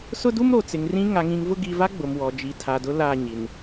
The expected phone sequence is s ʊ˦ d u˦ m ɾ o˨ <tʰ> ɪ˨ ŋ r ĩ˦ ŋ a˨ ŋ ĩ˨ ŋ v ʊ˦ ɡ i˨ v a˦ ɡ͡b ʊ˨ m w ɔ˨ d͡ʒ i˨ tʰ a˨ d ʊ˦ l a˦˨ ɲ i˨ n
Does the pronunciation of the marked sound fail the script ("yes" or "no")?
yes